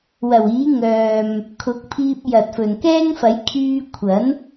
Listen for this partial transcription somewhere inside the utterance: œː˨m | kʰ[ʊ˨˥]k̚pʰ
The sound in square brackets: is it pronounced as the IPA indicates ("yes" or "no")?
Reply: yes